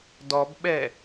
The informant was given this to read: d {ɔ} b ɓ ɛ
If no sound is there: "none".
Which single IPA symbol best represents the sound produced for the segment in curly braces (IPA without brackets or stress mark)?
ɔ